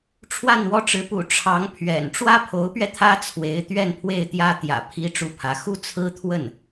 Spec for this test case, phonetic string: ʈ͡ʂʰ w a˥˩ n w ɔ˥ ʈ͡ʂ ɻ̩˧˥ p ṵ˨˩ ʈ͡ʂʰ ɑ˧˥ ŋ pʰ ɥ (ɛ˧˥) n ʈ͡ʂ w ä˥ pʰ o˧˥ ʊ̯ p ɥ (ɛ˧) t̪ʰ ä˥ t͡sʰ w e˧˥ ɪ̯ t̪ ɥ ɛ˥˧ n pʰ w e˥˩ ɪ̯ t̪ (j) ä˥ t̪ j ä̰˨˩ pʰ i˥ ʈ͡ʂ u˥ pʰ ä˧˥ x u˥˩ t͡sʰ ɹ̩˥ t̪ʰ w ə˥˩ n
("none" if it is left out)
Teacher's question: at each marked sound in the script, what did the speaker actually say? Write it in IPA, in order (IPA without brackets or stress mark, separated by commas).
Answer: ɛ̰˨˩, ɛ˧, j